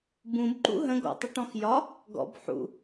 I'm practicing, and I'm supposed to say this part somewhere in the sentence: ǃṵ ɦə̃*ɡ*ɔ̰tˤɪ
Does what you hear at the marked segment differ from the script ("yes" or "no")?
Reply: no